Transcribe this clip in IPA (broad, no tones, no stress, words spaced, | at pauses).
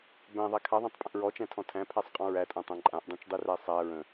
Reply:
bæ̃ðˤa kʰaðˤæ̃tˤpʼə̃ʔ ɹɔt͡ʃæ̃tʰɔ̃ tʰæ̃pʰæsˤqʼɔ̃ ɹætʼæ̃tˤæ̃ ǃʼãʔdˤĩt͡ʃdˤiræ sˤæ ɹə̃